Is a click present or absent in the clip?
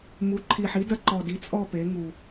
present